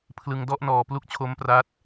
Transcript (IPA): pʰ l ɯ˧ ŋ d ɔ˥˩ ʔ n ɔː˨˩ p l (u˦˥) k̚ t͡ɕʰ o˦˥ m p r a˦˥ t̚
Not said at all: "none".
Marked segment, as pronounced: u˦˥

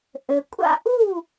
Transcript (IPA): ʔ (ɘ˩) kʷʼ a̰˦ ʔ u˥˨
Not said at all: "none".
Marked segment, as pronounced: ɘ˩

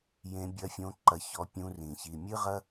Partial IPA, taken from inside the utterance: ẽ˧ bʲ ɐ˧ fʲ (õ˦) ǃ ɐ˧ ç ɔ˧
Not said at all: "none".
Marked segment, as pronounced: õ˧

